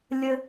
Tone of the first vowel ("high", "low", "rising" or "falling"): high